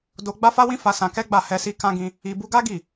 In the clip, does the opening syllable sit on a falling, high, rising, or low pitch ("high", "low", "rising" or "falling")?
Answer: high